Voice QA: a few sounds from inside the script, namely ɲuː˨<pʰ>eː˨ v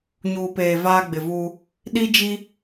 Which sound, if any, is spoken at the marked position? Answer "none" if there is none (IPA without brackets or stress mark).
p